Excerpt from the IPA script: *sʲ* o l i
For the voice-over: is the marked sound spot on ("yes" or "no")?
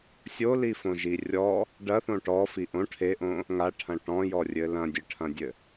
yes